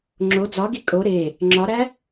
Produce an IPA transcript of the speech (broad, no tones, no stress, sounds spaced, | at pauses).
ŋ͡ǁ o d͡z ɒ ɡ i kʼ o ɾ e | ŋ͡ǁ ɒ ɾ æ